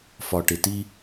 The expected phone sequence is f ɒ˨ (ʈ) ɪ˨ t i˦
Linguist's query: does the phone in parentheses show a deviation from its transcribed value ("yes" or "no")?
no